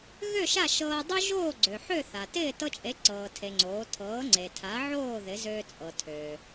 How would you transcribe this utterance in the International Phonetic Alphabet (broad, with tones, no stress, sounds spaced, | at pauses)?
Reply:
ɣ ø˥˩ ʃ a˥˩ ʃ ɤː˧ dˤ ø˥ ʒ oː˥˩ ɡ͡ǀ ø˩ ħ ø˥˩ θ a˩ t ɪː˥˩ t ɤ˧ t͡ʃʼ e˩˥ ǀ ɤː˩ tʰ e˩ ŋ͡ǀ oː˩˥ tʰ ɤː˩˥ ŋ͡ǀ e˩ tʰ a˩˥ ʕ oː˥˩ ð ɪ˩˥ z øː˧ t͡sʼ ɤ˩ tʰ øː˩